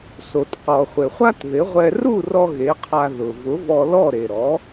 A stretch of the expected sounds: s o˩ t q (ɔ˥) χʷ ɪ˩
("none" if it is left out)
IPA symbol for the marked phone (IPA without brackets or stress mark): ɔ˩